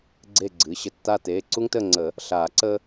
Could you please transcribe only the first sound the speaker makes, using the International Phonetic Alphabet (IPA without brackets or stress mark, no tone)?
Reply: ɡ͡ǀ